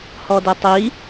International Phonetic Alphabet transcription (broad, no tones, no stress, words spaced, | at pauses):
hɔdɛtˤi